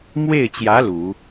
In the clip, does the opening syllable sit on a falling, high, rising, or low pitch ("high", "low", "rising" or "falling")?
falling